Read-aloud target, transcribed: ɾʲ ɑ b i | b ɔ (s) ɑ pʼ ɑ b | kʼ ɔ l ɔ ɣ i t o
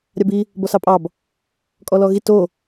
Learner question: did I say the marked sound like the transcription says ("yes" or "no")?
yes